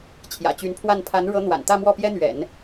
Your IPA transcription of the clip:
t͡ɕʰ j ä̰˨˩ t͡ɕ y˧˥ n pʰ w a˥˩ n pʰ a˧˥ n ɻ ɤ˧˥ n̪ w a̰˨˩ n t̪ ä˥˧ m w ɔ˥˩ p j ɛ˥ n̪ ɥ ɛ̰˨˩˦ n

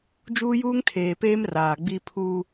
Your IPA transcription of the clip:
d͡ʒ uː˦ j uː˦ ŋ tʰ eː˨ p eː˦ m r aː˨ ɡ͡b i˦ pʰ u˦

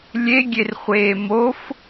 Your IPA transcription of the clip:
lʲ e ɡʲ e r χʷ eː m o f

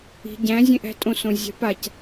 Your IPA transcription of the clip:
i̤ ɟ æ̃ zʲ ẽ ʔ æ̤ tʼ õ s õ zʲ æ̤ p a c

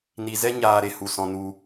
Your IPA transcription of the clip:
n i˧ z ɛ˦ ɲ aː˧ ɾ e˧ h u˧ s ɔ̃˧ n u˧

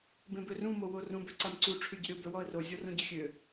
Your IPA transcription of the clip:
b ẽ b ø r ũ m o w o r ũ b ɛ ǀ a m ǀ u ʈ͡ʂʰ y ɟ ə ɾʲ o b œ w ɔ ə̯ r o zʲ ɔ r ũ ɟ ə xʲ ø

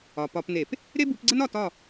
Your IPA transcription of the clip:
ɒ˩ p ɒ˧˩˧ p n e˧˩˧ p | ɾ e˥ b u˨˦ p ɡ͡ǀ ə˥ n ɒ˥˨ t ɒ˥˨

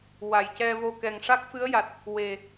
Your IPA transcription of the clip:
w a˨˩ j c ɛ˧ v o˧ k ɛ˨˩ ŋ ʂ a˦˥ k̚ f ɨ˧˥ ə̯ j a˨˩ t̚ | w e˨˩

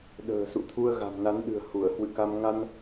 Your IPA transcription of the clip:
ɗ ə̤ː˨˩ s ṵ˧˨ t̪ʰ u˧ ə̯ ɣ a̤˨˩ m n a˨˦ n ɗ ɨ̤˨˩ ə̯ h u˧˩ ə̯ h w ɨ̰˧˨ k a˧ m ŋ a˧ n

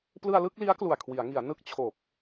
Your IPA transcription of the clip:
p l ɯ˧ a̯ l ɯ˥˩ k̚ l i˦˥ a̯ k l u˨˩ a̯ kʰ w i˩˦ a̯ ŋ i˩˦ a̯ n ɯ˦˥ k̚ t͡ɕʰ o˨˩ k̚

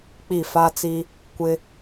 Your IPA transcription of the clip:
k͡p i˦˨ f a˦ t͡s i˦ | kʷ ɪ˦

